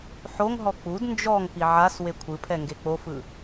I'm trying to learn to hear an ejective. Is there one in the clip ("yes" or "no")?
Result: no